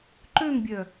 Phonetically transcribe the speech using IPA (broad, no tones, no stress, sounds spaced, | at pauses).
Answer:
ǃ ø ŋ bʲ œ